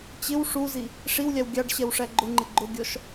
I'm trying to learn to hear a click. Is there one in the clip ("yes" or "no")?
yes